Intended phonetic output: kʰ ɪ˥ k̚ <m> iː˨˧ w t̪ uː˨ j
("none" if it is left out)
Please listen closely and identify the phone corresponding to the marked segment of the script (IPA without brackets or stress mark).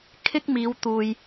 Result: m